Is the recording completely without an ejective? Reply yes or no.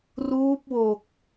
yes